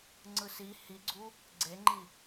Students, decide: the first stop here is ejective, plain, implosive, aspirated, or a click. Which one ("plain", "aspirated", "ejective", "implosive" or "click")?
click